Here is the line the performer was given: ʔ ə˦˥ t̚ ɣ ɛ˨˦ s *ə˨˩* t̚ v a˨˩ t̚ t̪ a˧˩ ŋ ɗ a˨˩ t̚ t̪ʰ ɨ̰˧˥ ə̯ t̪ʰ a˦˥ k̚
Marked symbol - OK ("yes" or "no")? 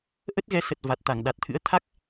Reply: yes